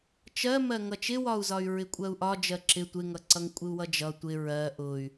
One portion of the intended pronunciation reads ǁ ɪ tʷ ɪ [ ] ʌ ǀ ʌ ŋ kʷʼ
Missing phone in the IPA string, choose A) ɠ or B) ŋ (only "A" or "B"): B